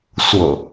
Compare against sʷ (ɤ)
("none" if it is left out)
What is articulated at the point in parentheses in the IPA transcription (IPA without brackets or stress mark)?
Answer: ɤ